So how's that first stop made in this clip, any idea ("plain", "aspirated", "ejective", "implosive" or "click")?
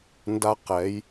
plain